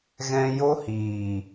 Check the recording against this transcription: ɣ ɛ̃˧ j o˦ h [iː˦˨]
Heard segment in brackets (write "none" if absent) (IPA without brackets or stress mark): iː˨